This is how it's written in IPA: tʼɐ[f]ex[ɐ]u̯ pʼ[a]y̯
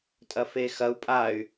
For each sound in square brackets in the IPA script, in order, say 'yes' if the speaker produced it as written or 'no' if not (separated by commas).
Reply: yes, yes, yes